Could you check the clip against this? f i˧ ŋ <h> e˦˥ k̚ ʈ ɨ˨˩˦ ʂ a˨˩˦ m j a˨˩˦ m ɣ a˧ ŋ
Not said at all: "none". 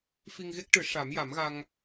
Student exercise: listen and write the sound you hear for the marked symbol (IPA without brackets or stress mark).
ɣ